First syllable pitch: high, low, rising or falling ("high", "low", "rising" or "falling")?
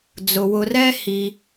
low